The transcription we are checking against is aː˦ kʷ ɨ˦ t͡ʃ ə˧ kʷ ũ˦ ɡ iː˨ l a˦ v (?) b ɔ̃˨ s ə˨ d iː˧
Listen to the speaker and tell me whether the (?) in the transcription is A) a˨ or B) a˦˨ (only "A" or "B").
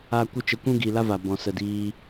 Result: A